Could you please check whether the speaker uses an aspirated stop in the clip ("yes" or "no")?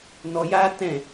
no